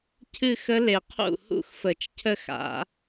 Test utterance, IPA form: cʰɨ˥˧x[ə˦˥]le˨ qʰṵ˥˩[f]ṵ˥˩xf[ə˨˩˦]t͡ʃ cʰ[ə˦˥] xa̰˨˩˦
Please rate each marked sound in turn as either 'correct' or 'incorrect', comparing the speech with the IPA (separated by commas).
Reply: correct, incorrect, correct, incorrect